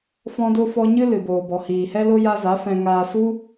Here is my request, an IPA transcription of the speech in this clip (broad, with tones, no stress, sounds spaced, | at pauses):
f ɔ̃˦ d o˦ f ɔ˦ ɲ ɨ˦ l ɨ˨ b oː˨ b ɔ˨ h iː˨ h ɛ˦ l o˦ j a˦ z a˨˦ f ɛ̃˧ ŋ aː˧ s u˦